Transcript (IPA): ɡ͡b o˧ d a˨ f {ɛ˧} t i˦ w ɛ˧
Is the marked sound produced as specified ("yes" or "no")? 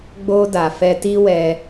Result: yes